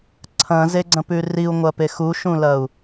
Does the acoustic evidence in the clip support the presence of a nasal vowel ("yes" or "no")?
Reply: yes